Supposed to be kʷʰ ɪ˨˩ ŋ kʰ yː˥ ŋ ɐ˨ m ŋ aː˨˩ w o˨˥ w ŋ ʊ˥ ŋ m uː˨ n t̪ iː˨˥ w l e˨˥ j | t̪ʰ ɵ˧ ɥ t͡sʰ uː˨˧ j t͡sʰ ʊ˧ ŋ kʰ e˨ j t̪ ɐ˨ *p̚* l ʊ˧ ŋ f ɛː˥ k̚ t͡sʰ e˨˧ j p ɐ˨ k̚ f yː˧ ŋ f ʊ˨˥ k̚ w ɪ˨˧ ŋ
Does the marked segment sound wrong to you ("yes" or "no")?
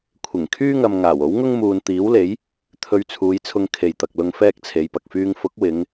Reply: yes